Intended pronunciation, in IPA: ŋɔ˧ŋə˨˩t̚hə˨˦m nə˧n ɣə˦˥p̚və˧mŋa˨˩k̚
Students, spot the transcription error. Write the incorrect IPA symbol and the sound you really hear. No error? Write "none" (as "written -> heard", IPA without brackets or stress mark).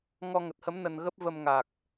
none